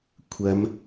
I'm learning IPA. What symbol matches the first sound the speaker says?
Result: kʷʰ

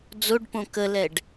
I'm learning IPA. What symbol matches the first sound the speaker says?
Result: d͡z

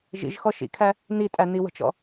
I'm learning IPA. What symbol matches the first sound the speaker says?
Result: ʒ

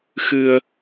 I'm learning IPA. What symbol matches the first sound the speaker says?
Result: x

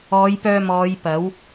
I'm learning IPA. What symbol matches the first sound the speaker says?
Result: ɔː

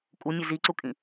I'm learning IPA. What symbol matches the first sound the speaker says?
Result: kʼ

